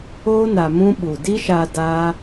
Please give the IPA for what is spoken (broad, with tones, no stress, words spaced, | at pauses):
oː˦ na˧mũ˦ ɓu˨di˦ʃa˧ daː˦